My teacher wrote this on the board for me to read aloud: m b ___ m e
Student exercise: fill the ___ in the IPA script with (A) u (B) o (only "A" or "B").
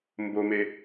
B